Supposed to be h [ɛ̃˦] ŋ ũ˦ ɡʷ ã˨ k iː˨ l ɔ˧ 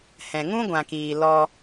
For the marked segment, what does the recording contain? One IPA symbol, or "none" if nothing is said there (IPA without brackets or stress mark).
ɛ̃˨